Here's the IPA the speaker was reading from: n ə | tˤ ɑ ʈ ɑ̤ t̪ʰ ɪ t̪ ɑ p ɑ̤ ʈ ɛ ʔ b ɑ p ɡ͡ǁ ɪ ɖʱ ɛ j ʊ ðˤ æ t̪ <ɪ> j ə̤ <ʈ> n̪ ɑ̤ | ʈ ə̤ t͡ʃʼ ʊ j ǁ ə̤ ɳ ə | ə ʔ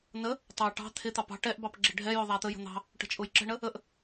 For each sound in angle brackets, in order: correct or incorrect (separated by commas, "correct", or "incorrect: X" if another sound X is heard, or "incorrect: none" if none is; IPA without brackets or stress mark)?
incorrect: ə, incorrect: none